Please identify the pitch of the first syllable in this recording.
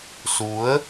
rising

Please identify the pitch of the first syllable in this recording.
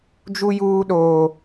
high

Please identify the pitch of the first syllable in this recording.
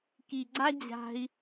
low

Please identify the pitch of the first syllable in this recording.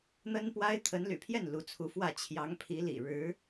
high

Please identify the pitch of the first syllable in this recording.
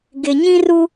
low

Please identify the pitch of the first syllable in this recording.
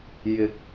rising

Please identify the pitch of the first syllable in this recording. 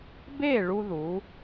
falling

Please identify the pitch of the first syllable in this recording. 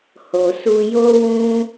low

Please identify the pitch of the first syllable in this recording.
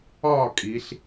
falling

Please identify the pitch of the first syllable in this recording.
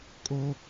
high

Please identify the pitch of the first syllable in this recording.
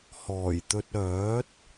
low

